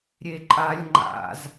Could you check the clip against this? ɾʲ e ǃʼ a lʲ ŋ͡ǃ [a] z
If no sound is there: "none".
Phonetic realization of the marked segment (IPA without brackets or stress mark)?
a̰